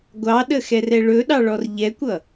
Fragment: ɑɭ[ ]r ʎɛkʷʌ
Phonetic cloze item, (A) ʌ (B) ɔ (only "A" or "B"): B